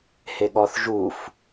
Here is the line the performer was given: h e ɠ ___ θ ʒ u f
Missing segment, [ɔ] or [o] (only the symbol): ɔ